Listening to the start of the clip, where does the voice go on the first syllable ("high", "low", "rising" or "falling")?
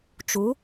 rising